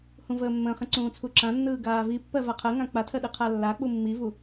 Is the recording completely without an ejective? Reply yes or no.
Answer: yes